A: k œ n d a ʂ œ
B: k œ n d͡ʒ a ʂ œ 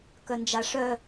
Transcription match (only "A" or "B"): B